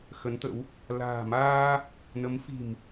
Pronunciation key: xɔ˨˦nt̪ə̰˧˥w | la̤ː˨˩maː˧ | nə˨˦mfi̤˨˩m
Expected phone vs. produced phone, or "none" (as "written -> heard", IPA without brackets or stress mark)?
ɔ˨˦ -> ə˨˦